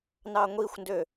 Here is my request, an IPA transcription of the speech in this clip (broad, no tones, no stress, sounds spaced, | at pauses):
n ɑ ŋʷ i xʷ n d ø